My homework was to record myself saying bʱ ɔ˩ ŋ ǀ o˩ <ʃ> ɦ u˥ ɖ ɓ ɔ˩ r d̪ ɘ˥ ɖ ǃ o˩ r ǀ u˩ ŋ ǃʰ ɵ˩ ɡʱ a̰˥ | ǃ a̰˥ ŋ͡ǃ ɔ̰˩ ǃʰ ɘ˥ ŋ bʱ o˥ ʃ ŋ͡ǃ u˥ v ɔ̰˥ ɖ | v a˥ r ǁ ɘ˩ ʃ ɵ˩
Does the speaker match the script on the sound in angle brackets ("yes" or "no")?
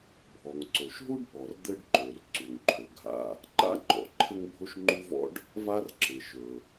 yes